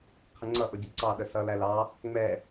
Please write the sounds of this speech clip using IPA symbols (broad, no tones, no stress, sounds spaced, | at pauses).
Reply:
qʰ ə ŋ͡ǀ ʌ ʔ ʊ dʲ ə ǀ ɑ ɗ ə s ʌ l æ l ɑ | ŋ͡m ɛ